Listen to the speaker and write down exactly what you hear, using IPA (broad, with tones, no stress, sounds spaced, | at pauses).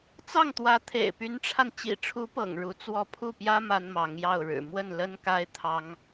t͡s ɑ˥˩ ŋ t̪ w ä˧˥ t̪ʰ ḛ˨˩ ɪ̯ p y˧˥ n ʈ͡ʂʰ a˧ n t͡ɕ ḭ˨˩ ʈ͡ʂʰ u˧˥ p ɤ̰˨˩ ŋ ɻ u˧˥ t͡s w ɔ˥˧ pʰ u˥˩ p j ä˥ m a˥ n m ɑ˧˥ ŋ j ɑ˥˩ ʊ̯ ɻ ɻ̩˨˩ m w ə˥˩ n l ə˥ n k a˥ ɪ̯ t̪ʰ ɑ˥ ŋ